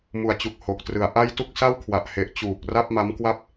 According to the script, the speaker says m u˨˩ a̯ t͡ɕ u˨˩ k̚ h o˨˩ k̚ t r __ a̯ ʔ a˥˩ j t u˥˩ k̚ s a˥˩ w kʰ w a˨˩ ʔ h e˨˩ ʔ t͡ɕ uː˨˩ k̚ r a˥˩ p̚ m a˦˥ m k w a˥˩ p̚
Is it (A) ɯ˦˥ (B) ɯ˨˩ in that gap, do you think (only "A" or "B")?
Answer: B